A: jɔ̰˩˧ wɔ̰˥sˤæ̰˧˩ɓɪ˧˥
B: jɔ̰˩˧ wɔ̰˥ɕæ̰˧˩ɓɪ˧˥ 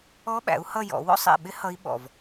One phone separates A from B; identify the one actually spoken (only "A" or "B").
A